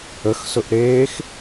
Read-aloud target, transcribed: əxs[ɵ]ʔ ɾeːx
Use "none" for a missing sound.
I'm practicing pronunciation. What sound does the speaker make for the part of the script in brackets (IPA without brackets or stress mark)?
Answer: ɵ